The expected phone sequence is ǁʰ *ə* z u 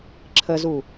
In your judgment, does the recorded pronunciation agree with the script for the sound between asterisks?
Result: yes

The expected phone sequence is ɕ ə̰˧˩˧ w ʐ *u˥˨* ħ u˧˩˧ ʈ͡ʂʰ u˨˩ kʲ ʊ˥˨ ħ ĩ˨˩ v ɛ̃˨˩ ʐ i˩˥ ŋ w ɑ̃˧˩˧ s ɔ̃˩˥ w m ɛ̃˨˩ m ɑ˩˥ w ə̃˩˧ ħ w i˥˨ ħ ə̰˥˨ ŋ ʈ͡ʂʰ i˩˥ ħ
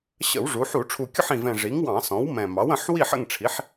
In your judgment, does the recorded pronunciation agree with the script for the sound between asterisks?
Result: no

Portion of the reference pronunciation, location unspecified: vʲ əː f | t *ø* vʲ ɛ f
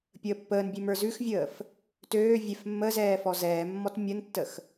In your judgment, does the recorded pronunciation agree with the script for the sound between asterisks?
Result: no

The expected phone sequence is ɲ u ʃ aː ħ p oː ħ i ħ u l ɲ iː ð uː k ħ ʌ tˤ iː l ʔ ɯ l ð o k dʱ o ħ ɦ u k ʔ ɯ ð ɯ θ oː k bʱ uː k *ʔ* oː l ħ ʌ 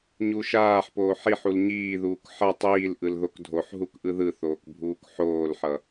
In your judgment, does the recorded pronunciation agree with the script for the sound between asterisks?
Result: no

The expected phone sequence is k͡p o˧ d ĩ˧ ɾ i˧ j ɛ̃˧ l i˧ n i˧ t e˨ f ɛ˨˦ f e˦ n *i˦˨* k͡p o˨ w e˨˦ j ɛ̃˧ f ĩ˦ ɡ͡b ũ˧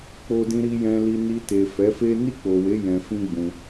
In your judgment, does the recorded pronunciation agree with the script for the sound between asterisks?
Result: yes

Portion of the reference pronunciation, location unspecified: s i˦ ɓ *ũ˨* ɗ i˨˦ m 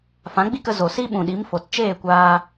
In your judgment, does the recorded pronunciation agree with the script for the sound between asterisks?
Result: yes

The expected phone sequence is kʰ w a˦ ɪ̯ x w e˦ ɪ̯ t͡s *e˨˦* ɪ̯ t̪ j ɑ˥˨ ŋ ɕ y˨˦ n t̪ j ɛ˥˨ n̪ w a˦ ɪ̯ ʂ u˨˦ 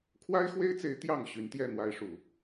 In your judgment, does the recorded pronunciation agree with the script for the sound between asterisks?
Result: yes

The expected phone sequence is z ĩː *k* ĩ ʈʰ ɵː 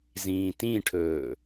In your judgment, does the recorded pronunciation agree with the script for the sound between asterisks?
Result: no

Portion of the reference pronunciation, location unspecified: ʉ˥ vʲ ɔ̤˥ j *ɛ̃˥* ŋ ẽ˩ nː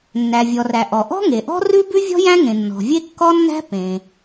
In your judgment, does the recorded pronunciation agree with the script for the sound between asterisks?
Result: no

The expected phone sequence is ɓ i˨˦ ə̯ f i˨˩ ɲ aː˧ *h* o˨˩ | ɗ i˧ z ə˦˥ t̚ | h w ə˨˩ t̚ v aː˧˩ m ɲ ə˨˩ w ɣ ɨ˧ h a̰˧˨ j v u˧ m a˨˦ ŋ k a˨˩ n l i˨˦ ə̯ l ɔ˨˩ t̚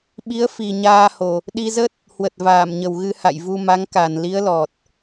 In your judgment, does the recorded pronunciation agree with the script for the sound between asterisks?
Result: yes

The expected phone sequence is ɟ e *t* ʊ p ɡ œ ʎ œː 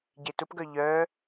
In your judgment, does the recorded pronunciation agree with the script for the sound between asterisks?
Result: yes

